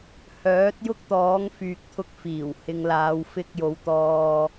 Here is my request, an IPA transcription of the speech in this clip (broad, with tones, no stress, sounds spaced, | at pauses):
h œː˨˥ t̚ j ʊ˥ k̚ t̪ ɔː˨˥ ŋ f yː˨ k̚ t̪ʰ ʊ˧ k̚ f iː˨˩ w h ɪ˨˧ ŋ l aː˨˧ w f ɪ˧ k̚ j o˨˧ w t̪ ɔː˧